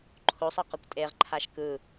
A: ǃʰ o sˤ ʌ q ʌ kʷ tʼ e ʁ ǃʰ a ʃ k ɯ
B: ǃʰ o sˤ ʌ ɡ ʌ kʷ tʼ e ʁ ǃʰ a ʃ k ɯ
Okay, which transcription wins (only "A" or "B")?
A